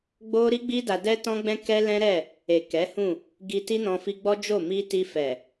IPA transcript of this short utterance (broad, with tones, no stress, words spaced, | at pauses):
ɡ͡bo˦ ɾi˦ɡ͡bi˦ da˧dɛ˦tɔ̃˦ɡ͡bɛ̃˦ kɛ˦lɛ̃˦ɾɛ˦˨ | e˨kɛ˨˦hũ˦˨ | ɡi˧ti˦nɔ̃˧ fi˧ɡ͡bɔ˦d͡ʒo˦˨ mi˧ ti˧fɛ˨